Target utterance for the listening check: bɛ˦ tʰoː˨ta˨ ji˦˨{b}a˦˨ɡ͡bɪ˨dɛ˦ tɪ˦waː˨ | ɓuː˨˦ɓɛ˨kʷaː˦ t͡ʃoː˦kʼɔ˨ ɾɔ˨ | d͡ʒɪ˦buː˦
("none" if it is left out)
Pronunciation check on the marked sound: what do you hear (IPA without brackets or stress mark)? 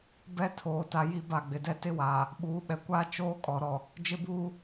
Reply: b